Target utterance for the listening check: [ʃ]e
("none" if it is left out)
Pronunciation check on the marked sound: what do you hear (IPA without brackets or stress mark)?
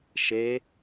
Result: ʃ